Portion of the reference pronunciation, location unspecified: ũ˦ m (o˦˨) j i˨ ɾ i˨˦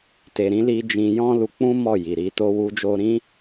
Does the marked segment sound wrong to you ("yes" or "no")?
yes